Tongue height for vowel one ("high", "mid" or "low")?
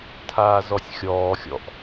low